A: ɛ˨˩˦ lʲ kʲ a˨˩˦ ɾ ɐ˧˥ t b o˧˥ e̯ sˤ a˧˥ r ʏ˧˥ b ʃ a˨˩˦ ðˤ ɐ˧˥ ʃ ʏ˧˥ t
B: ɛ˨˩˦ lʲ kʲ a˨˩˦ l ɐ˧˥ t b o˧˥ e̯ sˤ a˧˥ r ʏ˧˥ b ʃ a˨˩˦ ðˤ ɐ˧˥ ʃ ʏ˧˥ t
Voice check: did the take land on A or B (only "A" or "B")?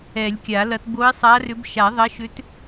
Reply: B